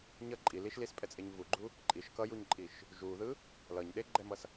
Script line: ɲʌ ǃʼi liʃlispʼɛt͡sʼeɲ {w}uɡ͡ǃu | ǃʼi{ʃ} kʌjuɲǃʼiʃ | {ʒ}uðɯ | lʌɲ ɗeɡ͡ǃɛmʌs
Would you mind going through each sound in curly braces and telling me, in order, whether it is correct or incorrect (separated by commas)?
incorrect, correct, correct